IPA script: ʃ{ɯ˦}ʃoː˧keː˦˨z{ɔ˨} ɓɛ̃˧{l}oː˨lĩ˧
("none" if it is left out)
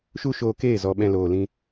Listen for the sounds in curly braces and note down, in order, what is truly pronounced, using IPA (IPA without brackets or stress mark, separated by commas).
u˦, ɔ˨, l